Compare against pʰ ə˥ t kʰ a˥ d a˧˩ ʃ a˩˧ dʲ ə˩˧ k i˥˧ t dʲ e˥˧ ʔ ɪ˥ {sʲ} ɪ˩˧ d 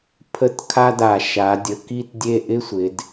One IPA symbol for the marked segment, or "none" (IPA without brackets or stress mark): sʷ